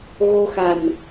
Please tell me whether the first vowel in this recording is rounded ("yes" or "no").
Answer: yes